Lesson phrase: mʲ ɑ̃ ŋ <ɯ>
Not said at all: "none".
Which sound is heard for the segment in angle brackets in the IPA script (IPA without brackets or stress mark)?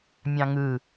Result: ɯ